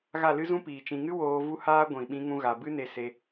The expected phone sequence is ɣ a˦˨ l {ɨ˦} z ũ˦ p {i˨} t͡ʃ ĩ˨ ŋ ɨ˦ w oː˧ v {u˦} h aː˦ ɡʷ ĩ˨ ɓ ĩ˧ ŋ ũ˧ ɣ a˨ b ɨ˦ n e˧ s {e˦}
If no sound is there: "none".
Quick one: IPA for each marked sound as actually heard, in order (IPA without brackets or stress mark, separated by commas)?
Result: ɨ˦, iː˨, u˦, e˧